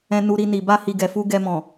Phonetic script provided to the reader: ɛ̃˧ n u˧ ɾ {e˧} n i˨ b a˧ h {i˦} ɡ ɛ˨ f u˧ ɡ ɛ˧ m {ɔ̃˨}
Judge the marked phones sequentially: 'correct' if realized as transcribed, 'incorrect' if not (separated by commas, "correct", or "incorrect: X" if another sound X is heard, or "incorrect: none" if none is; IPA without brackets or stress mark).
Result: incorrect: i˧, incorrect: i˨, correct